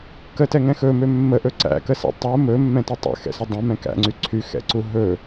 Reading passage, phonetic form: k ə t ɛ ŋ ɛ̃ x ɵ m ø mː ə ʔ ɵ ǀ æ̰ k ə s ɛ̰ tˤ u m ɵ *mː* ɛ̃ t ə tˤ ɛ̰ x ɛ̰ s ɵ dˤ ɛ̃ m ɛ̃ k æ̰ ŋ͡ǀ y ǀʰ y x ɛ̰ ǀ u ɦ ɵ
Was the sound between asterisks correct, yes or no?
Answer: yes